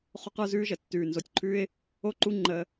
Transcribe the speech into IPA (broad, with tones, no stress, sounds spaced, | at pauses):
χ o˦ q ə˞˦ z ʉː˦ ʒ ə˨ tː ʉː˨ n z o˨ tʲ ǃʰ ʉː˦ ɪ̯ | o˦˨ ǃ u˦ ŋ͡ǃ əː˦